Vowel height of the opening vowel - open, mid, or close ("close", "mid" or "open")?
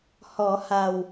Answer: mid